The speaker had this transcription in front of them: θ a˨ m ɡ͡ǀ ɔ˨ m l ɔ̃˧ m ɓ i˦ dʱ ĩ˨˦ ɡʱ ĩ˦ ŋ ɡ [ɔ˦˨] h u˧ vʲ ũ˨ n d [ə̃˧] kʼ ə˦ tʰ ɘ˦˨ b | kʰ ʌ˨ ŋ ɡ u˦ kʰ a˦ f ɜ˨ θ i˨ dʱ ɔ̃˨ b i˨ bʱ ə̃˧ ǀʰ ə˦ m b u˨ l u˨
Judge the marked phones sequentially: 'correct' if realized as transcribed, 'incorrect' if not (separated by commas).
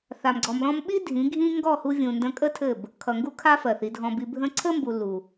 correct, correct